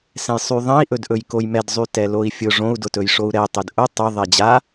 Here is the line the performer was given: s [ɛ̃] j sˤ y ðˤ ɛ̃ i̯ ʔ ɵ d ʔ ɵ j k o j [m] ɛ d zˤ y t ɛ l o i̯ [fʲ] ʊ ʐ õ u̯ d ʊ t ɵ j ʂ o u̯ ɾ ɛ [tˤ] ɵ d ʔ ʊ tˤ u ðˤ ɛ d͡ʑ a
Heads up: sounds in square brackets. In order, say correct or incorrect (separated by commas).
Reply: correct, correct, correct, correct